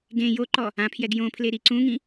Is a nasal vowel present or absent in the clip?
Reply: present